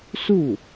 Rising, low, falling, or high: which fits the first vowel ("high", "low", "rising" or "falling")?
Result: falling